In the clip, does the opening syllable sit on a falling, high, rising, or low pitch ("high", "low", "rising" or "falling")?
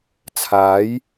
rising